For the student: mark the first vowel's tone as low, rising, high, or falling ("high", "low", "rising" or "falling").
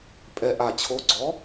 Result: low